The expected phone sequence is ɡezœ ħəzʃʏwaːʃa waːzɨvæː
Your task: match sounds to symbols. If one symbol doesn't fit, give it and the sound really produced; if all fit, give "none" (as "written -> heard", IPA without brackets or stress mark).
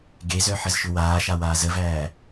ɨ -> ə